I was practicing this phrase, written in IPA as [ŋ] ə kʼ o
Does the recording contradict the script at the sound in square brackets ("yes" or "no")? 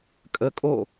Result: yes